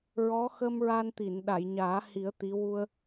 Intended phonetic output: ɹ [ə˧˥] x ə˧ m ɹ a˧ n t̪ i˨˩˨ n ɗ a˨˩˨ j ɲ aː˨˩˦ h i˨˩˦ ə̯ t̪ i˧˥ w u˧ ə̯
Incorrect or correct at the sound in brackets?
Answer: incorrect: ɔ˧˥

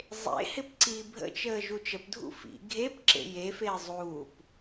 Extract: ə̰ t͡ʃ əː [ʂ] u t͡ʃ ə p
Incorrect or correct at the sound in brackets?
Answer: incorrect: ʒ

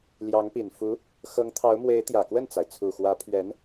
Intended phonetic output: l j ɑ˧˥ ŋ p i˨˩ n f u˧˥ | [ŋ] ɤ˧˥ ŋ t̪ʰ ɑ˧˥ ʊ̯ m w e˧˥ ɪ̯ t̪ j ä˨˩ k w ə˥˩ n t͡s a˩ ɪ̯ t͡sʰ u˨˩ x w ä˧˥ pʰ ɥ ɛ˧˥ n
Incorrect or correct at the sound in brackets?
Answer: incorrect: x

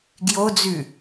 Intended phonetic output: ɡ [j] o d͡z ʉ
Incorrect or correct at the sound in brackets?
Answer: correct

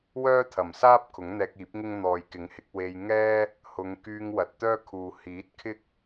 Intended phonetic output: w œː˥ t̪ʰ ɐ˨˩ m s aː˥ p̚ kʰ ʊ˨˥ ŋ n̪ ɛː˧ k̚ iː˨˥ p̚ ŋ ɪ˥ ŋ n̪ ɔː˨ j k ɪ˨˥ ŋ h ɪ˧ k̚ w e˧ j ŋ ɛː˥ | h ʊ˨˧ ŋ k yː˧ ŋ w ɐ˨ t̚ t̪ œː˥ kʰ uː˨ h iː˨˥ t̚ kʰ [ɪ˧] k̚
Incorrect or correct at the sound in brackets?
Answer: incorrect: ɪ˥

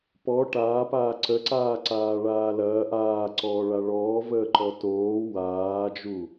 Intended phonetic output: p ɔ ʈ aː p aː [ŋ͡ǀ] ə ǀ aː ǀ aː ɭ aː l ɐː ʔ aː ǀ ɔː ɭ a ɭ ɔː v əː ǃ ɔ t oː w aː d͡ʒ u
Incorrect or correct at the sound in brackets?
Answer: incorrect: ǀ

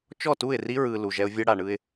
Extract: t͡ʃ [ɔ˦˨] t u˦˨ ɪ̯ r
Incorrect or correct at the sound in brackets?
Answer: correct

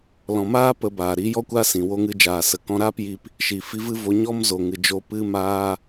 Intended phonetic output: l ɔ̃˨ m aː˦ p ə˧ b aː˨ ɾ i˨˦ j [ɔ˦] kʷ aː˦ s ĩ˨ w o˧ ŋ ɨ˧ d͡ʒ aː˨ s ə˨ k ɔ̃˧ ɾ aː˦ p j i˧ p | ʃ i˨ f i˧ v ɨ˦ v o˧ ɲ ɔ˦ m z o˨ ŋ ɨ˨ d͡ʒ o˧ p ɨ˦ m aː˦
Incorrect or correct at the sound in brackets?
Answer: correct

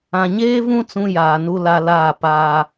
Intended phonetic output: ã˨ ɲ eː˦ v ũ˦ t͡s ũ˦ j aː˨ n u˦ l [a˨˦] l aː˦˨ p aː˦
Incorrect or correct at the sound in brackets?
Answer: incorrect: a˦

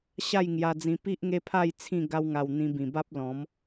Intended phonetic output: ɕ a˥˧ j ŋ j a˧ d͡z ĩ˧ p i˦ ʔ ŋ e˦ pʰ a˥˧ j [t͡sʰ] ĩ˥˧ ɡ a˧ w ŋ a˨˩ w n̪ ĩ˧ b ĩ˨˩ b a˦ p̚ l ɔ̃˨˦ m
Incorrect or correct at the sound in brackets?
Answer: correct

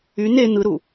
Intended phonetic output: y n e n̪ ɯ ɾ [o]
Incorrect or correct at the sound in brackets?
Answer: incorrect: u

